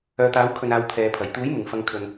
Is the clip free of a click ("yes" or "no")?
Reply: yes